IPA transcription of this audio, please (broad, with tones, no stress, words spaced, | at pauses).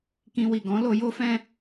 kĩ˧wi˨ ɡɔ̃˨˦lo˧jo˦fɛ̃˦